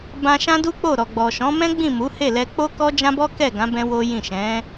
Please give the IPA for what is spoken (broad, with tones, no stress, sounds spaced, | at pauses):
b ã˧ ʃ ã˦ d u˦ k͡p o˦˨ ɾ ɔ˨ ɡ͡b ɔ˨ ʃ ɔ̃˨˦ m ɛ̃˦ ɡ͡b ĩ˦˨ m u˨˦ h e˦˨ l ɛ˧ k͡p o˦ k ɔ˦ d͡ʒ ã˦ b ɔ˦ k ɛ˦˨ ɡ ã˨˦ b ɛ̃˧ w o˦ j ĩ˦˨ ʃ ɛ̃˨˦